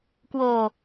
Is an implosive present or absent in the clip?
absent